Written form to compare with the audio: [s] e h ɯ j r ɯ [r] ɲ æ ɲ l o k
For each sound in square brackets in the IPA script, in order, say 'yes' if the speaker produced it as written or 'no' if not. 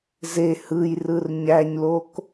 no, yes

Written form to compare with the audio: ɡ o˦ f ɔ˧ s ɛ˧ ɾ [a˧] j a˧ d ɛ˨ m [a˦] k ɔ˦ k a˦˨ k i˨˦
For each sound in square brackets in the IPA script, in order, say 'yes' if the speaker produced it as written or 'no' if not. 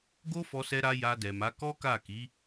yes, no

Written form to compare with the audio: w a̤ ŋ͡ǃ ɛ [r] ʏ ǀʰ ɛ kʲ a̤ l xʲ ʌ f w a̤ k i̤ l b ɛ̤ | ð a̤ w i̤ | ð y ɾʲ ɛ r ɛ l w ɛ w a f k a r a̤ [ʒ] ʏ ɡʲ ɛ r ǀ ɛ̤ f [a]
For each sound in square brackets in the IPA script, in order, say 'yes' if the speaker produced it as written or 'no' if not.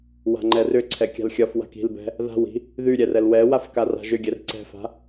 yes, yes, no

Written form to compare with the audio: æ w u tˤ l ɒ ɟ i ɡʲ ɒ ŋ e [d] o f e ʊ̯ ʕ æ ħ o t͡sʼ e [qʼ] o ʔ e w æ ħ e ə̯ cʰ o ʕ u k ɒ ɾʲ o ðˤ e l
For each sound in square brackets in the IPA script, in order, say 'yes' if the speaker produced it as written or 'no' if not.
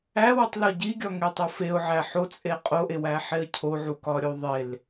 no, yes

